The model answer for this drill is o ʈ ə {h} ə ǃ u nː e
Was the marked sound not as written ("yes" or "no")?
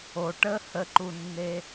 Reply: no